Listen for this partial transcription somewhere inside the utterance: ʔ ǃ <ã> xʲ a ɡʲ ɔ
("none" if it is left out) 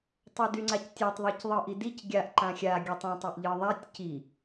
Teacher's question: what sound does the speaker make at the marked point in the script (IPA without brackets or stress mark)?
ã